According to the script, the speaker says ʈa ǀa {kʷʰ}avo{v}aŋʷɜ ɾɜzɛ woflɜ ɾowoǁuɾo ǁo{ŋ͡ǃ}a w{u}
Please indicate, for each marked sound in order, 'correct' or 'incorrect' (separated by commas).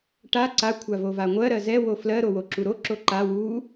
correct, correct, incorrect, correct